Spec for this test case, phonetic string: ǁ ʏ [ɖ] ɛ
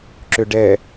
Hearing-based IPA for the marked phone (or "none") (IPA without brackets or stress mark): ɖ